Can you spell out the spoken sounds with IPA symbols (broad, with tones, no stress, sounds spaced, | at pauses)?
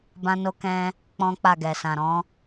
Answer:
b ã˧ n o˧ k ɛ̃˧ | k͡p ɔ̃˦ k͡p a˦˨ ɡ ɛ˨ s ã˨ ɾ ɔ̃˨˦